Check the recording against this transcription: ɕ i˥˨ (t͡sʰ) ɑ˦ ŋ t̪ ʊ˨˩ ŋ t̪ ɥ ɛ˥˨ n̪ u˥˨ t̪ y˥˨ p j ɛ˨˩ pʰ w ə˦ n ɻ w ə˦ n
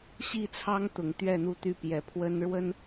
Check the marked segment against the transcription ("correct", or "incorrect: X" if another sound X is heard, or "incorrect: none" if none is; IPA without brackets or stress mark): correct